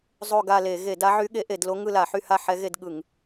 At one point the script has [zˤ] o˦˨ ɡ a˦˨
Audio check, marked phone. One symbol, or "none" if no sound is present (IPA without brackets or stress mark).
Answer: zˤ